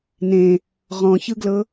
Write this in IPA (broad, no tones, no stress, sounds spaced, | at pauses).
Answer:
n ẽ | ʁ ɔ̃ ç ɯ ɡ l ɤ